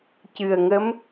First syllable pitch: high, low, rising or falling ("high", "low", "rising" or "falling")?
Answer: low